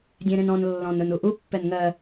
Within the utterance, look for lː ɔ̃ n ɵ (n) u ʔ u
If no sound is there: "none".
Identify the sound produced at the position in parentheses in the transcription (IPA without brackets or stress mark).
n